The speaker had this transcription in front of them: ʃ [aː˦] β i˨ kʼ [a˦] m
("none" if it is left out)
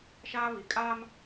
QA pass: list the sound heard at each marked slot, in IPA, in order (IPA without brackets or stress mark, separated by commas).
aː˦, aː˦